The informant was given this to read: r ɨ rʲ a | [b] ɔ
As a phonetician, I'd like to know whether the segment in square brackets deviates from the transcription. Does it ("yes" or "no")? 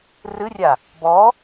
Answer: no